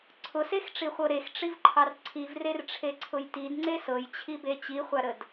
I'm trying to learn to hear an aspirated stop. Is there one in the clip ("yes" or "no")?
yes